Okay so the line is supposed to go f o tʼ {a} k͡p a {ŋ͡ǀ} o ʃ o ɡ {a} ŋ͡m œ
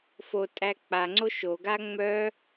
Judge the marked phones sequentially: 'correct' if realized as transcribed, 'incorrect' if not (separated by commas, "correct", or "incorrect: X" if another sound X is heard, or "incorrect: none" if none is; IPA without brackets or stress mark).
incorrect: æ, correct, correct